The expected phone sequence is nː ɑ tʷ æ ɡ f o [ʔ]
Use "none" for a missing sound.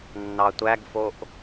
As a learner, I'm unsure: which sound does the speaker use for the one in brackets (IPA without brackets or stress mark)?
ʔ